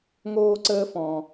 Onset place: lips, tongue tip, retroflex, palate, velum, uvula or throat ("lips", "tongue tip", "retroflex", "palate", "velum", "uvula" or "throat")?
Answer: velum